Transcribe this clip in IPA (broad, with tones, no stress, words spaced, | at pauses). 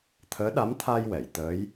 t̪ʰəː˧˥ɗa˧˥mt̪ʰa˧jwɛ˨˩˨j t̪əː˧˥j